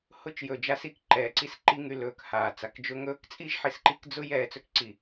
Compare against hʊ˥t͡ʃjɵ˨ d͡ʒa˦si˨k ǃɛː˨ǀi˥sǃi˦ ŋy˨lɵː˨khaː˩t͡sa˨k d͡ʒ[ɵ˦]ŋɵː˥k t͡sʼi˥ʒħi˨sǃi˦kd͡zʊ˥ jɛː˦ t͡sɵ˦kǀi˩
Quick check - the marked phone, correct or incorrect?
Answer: incorrect